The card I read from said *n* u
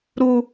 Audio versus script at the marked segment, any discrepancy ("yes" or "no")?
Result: yes